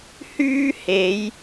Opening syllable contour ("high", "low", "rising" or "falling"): high